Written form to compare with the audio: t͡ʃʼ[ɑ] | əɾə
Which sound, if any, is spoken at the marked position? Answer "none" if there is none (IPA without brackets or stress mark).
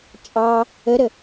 ɑ